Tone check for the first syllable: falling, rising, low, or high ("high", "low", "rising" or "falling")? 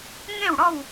falling